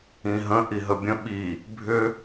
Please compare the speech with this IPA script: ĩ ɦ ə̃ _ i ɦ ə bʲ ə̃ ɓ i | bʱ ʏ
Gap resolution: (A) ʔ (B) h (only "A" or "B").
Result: A